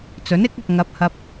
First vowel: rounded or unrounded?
rounded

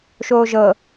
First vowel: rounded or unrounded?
rounded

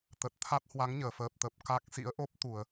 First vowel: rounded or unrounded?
unrounded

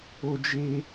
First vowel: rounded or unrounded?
rounded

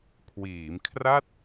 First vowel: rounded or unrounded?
unrounded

